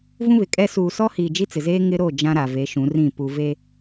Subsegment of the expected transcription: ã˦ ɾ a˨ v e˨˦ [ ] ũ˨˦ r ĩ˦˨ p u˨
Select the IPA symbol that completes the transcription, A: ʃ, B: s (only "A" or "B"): A